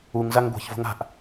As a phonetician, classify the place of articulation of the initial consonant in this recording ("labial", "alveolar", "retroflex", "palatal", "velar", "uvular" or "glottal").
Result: velar